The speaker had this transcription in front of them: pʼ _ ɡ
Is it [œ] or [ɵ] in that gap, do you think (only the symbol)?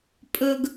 ɵ